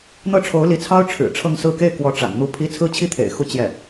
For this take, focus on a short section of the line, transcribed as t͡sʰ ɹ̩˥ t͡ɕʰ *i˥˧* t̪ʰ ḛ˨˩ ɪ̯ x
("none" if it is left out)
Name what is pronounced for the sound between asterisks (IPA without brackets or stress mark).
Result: i˥